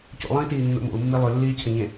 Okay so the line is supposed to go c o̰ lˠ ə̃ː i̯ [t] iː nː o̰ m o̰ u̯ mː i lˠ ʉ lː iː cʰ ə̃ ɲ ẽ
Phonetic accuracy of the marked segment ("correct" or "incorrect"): correct